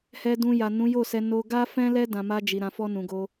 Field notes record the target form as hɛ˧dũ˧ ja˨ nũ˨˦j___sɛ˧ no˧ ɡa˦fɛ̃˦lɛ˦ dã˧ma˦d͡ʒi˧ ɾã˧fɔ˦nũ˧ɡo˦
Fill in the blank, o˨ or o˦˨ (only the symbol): o˦˨